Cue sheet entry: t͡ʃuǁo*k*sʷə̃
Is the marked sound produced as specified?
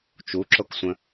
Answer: yes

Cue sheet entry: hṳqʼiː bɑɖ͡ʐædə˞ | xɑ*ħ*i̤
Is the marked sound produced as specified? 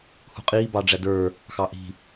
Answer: no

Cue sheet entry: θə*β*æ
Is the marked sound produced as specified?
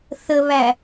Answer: yes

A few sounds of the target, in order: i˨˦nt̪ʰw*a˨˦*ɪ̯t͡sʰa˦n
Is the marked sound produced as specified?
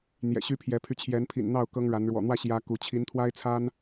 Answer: no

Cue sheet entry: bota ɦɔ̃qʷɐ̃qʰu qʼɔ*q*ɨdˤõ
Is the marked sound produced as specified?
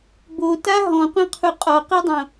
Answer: yes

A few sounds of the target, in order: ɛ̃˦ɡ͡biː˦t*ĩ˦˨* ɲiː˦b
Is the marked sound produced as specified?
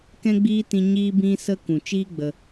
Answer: no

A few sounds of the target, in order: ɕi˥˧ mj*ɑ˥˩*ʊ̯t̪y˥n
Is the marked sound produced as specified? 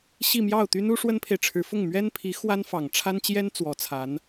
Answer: yes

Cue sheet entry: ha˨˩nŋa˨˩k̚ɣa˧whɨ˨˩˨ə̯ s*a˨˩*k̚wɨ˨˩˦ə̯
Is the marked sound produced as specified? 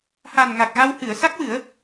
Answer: no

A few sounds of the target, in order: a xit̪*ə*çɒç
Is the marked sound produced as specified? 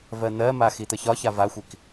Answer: yes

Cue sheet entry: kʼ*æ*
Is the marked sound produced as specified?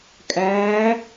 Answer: no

